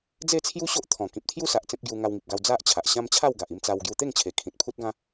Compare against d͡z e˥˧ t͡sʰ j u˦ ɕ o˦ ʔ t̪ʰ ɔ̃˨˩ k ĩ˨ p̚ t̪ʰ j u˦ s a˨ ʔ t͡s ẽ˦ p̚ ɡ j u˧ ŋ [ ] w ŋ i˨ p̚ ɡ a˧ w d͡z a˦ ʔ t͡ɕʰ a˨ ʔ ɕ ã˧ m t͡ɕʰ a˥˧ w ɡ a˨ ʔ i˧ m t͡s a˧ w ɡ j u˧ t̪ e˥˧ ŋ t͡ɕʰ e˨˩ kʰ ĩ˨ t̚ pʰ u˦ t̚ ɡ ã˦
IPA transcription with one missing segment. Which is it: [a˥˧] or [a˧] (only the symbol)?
a˧